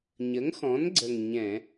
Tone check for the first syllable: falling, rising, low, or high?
rising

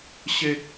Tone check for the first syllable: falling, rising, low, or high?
low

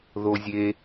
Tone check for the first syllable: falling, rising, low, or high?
high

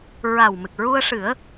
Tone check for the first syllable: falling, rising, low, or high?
low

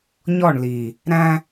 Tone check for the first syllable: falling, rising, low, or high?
falling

